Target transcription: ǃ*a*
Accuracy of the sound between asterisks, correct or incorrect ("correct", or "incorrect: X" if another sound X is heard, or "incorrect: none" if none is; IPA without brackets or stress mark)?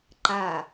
correct